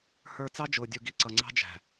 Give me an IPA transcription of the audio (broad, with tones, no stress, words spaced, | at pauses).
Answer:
hə˞˨ t͡sɑ˦d͡ʒʊː˨dʲu˨ɡi˨ ǀʌ˨ŋ͡ǀɑ̤˦d͡ʒæ̤˨